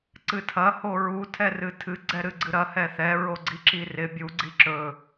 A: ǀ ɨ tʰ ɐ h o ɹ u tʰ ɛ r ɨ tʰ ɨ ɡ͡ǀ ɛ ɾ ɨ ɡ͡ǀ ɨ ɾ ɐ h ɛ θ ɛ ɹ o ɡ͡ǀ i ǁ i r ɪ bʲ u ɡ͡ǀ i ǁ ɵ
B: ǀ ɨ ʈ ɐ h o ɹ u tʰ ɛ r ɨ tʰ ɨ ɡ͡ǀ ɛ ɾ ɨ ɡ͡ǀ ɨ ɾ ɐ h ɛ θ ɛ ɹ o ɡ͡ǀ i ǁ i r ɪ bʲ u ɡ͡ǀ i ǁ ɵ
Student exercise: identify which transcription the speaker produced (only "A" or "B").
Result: A